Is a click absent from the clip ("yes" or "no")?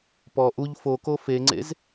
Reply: no